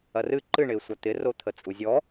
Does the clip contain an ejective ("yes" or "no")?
yes